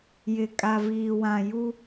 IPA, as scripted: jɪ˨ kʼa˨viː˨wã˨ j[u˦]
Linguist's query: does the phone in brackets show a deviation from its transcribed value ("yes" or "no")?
no